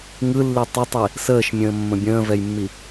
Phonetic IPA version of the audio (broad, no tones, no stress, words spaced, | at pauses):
ŋɯlːi tˤətˤi | səːʃmʲə̃ːmːə̃ bʲə̃ːvɛjmːi